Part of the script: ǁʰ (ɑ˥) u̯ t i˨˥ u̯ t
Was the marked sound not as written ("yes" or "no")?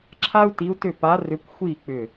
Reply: yes